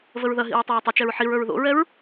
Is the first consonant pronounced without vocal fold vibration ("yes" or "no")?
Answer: no